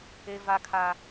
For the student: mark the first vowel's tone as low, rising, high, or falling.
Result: high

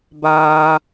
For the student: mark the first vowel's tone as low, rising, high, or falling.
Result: high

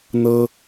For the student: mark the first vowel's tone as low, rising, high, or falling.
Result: high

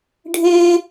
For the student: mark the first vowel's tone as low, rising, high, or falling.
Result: high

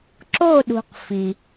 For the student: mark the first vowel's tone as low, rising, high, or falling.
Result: falling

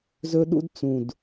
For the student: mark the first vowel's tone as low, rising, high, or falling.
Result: high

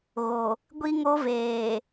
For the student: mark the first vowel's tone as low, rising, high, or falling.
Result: low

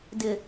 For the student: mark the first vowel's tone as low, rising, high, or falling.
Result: low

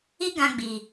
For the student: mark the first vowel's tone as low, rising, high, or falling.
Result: high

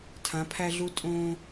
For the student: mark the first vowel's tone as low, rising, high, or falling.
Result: rising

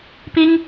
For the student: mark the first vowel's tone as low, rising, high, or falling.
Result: high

